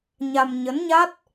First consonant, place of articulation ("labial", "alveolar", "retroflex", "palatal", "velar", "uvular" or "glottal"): palatal